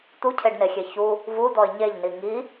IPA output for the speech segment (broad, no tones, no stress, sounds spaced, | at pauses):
t̪ u cʰ e ɖ n e xʲ e ç u | v u d̪ ɔ ɪ̯ ɲ e ʎ n i ŋ i